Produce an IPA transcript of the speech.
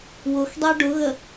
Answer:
wʊxdˤɛ ɖʊɣə

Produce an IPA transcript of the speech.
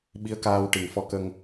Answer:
ɓi˧˥ə̯ kaː˧w ʈi˨˩ŋfɔ˧˥kə˧ŋ

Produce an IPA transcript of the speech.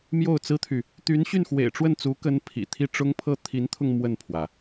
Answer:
mjo˥˩ʊ̯t͡sɹ̩˥t̪ʰy˨ | t̪y˧˥nɕy˥˩nxwḛ˨˩ɪ̯ʈ͡ʂwə˥˩n t͡su˧˥ kə˥npʰḭ˨˩ t̪ʰi˥˩ʈ͡ʂʊ˥ŋpʰɤ˥ t̪ʰi˧˥nt̪ʰʊ˧ŋ mwə˥˩npʰwä˩

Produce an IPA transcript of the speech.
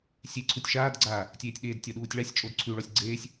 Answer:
sʲeǀʰutʲ ʃaːdɡ͡ǀaː | tʲeːtʲɗeːdtʲɒ ɗuːtʲɭasʲt͡ʃʼod ǀʰʉɭɔsʲ ɡ͡ǀeːsʲ

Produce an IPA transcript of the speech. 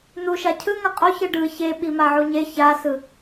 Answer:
n̪uʃa cʰɯŋʌ qʼoçɯ ɖɯ çe ɓimaʕuɲe çasɯ

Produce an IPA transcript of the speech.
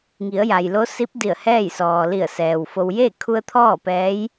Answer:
ŋi˩˧ə̯ja˩jlo˧˥si˧˥p̚ di˧˩ə̯hɛː˥˨jsɔː˩li˧˩ə̯ sɛː˩wfo˧w je˥˨ kʰu˧ə̯ t̪ʰɔː˥˨ pɛː˧˥j

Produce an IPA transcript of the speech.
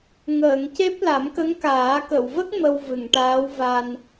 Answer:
ŋəː˨˩˨ŋce˦˥p̚ la˨˩˦mkə˧˥ŋkaː˨˩˦ kə˨˩˨wvə˦˥k̚ mə˧wvɨ˨˩˨ŋʈaː˧˥wva˧n

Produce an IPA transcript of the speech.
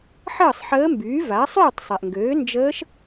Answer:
ħəː˥˨sˤħəː˧˥mbyː˩˥va˩˥ sˤyː˥˨tˤsˤɛ˩ʔŋɡøː˩˥ nd͡ʒəː˧˥ʃ

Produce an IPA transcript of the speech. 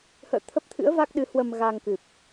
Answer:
hə̰ː˧˨t̪ʰə˦˥p̚t̪ʰɨ̰˧˥ə̯ va˦˥k̚ɗɨ˨˦hwə˧m ɣa˧ŋkɨ˨˩p̚

